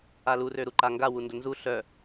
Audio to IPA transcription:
a l u r ø ɾ u ǃ a ŋ ɡ a w u n d ə n z u ɬ œ

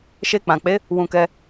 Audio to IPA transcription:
ʃ e˧ k͡p ã˨ k͡p e˨˦ | w ũ˧ k ɛ˧

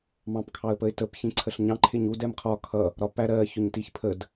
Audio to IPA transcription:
m ɑ̃ p kʰ ɑ ə̯ p ə ɪ̯ t ə p ç ĩ ǀʰ ə ɬ ɲ ɑ̃ ǃʰ ɪ ɲ u d ɛ m qʰ ɒ kʰ ʌ | ɾ ɒ p æ ɾ ɜ ç ʊ ɲ t i ç pʰ ə d

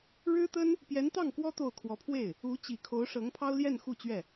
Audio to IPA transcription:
ɻ ɻ̩˥ t̪ ə˥ n | p j ɛ˧˥ n t̪ ɑ˥˩ ŋ k w ɔ˥ t̪ o˥˩ ʊ̯ kʰ w ɔ˧˥ pʰ w e˥˩ ɪ̯ | u˧˥ t͡ɕ i˨˩ kʰ o˧˥ ʊ̯ ʂ ɤ˧˥ ŋ pʰ ɑ˥ ʊ̯ l j ɛ˥˧ n x u˥˧ t͡ɕ ɥ ɛ˥˩

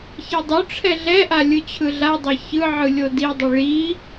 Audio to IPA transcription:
ç ɛ dˤ o ʈ͡ʂʰ ɛ ɮ ɛ ʔ a lʲ ɯ t͡ɕʰ ɯ ɮ a dˤ e ç ɯ ʕ ɯ lʲ o d i dˤ ɯ ɭ i

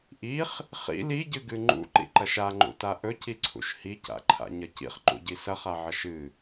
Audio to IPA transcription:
ʔ i χ | χ ḭ l i ɟ ɨ ɡ ɨ ŋ͡ǃ ṵ ǃ ḭ ǃ ɐ ʃ a ŋ͡ǃ ṵ t a ʔ ɵ c i ǀʰ ṵ ʃ h i c a̰ ǃʰ a̰ ɲ ɐ c ḭ χ ǃ ṵ ɟ i s ɐ χ a ʕ ɐ ʃ ɨ

